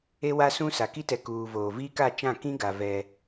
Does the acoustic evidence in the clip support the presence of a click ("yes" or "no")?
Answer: no